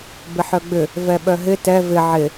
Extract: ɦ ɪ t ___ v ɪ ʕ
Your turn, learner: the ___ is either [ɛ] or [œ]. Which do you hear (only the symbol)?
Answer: ɛ